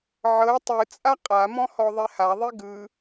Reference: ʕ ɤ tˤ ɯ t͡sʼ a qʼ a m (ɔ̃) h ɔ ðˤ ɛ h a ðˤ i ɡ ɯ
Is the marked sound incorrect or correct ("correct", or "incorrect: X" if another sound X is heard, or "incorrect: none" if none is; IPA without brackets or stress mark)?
correct